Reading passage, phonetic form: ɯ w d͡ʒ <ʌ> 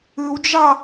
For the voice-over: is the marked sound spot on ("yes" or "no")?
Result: no